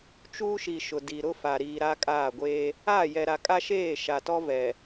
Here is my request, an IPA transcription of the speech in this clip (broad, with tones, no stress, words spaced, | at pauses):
t͡ʃuː˦ʃi˨ ʃʊ˨di˨ɾʊ˦fa˨ ɾiː˨ɾa˦kʼaː˦˨ɡʷeː˦ | aː˦˨jɛ˨ɾa˨kʼa˦ ʃeː˦˨ ʃa˨tɔ˦vɛ˨